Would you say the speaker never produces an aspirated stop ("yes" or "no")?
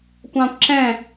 yes